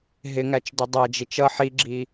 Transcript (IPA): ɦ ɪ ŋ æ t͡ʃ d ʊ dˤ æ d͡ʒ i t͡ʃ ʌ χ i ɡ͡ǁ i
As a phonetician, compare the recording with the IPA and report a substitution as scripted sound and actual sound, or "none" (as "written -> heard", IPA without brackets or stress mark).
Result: χ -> ħ